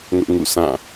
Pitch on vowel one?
high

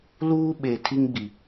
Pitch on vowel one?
high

